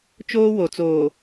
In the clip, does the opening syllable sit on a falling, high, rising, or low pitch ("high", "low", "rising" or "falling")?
high